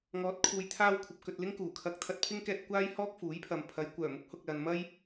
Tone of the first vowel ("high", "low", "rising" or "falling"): rising